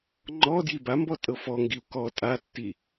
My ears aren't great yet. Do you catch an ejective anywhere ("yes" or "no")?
yes